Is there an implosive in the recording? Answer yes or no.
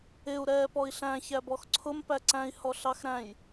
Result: no